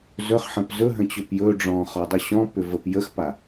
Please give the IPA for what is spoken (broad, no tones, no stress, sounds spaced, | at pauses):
z ɵ χ ħ ə̃ p z ɵ ɦ ə̃ t͡ɕ ʏ p j ɵ ɖ͡ʐ ɔ̃ χ ɒ dˤ ʏ ɕ ɔ̃ p ʏ v ə p j ə x p a